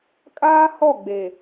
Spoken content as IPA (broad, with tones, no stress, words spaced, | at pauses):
kʼaː˦hɔ˦˨ɡ͡be˨